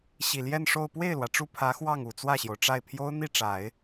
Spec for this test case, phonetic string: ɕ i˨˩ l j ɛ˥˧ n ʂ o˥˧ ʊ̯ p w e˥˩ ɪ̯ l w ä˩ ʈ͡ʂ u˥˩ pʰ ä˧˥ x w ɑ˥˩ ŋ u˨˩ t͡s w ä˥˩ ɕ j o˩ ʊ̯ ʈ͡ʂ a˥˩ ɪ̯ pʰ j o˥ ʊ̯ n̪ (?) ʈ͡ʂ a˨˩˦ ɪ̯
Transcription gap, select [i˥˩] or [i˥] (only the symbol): i˥˩